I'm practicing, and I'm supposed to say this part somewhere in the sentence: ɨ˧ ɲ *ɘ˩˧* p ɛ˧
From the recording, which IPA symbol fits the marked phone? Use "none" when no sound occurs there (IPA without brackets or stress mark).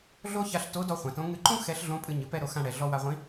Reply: ɘ˩˧